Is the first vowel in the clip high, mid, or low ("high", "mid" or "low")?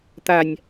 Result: low